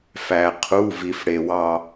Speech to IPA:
f æ˩ qʰ u˩˧˩ v i˩ f ɽ e˩ w ɑ˧˩

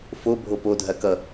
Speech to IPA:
f o bʱ o p o dʱ ɐ k ʌ

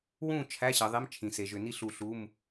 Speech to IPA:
w ũ˥˨ t͡ʃʰ æ˧˥˧ ɕ ə˩˧ ðˤ e˧˥˧ m t͡ʃʰ ĩ˩˧ s e˩˧ ʒ ʏ˩˧ n i˥˨ ɬ u˧˩ ɬ u˧˥˧ m

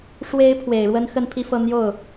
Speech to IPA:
ʂ w e˧˥ ɪ̯ pʰ w e˨˩ ɪ̯ ɻ w ə˥ n x ə˥˧ n pʰ i˥˧ f ɤ˥˧ n̪ j o˥˩ ʊ̯

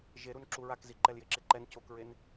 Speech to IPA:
ʒ e ɾ u n ǁ u ɹ a k z i ǃ ɛ l j e ǁ e ǃ ɛ n c o k ɹ e n

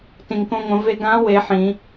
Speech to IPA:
t ĩ˩ ŋ k õ˧ ŋʷ ə̃˩˧ v e˧ ɡ ã˧˥ w e˩˧ ħ ĩ˩˧

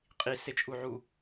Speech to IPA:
qʼ i s e t͡ʃʼ u ʕ u

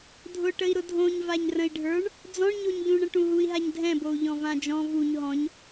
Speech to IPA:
dʱ ʊ ʈ ə i̯ ɾ ʊ dʱ õ ɲ v a ɲ r ə̃ i̯ ɖʱ ə˞ ɳ | d͡z ɔ̃ ɳ ɲ o ɲ ʎ ũ ɳ ə̃ ʈ ũ ɦ u i̯ ɦ a ɲ dʱ ɛ̃ b o u̯ ʎ ɔ̃ v ã d͡ʒ ɔ̃ v u ɲ ɦ ɔ̃ ɲ

